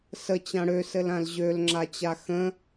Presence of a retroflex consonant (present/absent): present